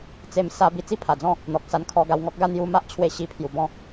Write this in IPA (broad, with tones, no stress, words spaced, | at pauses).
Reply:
t͡se˧m sa˧ bi˧t͡si˦pʰa˨˩d͡zɔ̃˥˧ | n̪ɔ˨k̚sa˧nkʰɔ˧ ɡa˧wŋɔ˦k̚ɡa˥˧ n̪ju˧ ma˦ʔt͡ɕʰwe˧ ɕi˧ pʰju˨˩bɔ̃˦